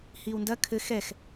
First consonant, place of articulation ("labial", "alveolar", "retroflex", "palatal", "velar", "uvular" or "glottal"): glottal